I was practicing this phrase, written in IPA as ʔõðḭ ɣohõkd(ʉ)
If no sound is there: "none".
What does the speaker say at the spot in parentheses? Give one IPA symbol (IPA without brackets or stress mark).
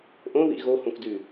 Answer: ʉ